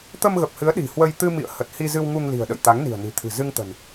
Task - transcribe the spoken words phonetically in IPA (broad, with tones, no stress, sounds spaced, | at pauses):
t̪ ə˧ m ɣ ə˨˩ p̚ h ɨ˨˦ ə̯ ɗ i̤˨˩ h w ə˧ j t̪ ɨ˧ m ḭ˧˨ ə̯ h ə˨˩ t̚ h i˧ z ɨ˧ w ŋ u˧ ŋ l i̤˨˩ ə̯ ɗ ə̰˧˨ j t̪ a˨˦ ŋ n i̤˨˩ ə̯ n i̤˨˩ t̪ʰ ɨ̤˨˩ z ɨ˧ ŋ t̪ ə̤˨˩ n